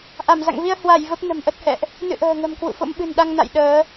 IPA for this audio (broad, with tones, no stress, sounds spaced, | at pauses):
ʔ a˧˩ m z a̰˧˨ ŋ v i˧ ə̯ h w a˧˩ j v ə˦˥ p̚ n ə̤˨˩ m ʔ ə˦˥ t̚ h ɛ̰˧˨ ʔ | n ɨ̰˧˨ ʔ ə̤ː˨˩ ŋ ə̤˨˩ m k w ṵ˧˨ f o̰˧˥ m ɓ ɨ̤˨˩ n ɗ a˧ ŋ n a̰˧˨ j ɗ əː˨˦